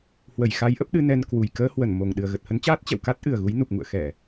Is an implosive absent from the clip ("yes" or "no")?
no